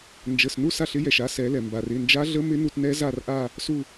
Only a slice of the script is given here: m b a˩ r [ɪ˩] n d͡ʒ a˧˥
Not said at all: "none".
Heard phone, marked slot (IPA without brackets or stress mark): ɪ˩˧˩